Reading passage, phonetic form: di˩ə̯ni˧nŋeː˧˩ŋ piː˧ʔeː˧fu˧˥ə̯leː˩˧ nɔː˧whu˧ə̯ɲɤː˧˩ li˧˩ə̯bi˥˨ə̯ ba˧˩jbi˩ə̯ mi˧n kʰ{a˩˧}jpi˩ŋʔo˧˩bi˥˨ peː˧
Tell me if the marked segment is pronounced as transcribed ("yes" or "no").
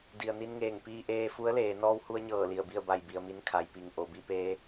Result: yes